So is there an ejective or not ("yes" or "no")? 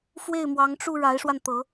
no